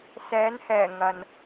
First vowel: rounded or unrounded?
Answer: unrounded